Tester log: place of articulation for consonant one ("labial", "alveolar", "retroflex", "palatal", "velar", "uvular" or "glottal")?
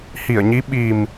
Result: glottal